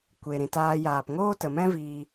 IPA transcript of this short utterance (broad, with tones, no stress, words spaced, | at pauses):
kʷe˨ɾĩ˨taː˧ jaː˨pŋoː˦ tə˨mɛ̃˦viː˧